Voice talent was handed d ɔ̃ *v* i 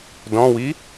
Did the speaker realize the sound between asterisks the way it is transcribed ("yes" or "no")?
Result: no